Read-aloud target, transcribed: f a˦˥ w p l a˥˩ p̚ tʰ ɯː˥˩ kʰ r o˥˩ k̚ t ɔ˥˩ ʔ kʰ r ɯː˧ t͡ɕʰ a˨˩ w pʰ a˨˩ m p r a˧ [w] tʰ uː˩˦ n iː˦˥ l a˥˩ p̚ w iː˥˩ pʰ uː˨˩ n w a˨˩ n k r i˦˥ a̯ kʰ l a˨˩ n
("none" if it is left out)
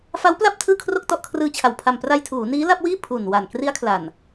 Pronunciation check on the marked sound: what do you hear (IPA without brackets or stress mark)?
j